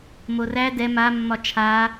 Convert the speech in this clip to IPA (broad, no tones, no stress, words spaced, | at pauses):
moræ dɛ ma mːɒt͡ʃʰa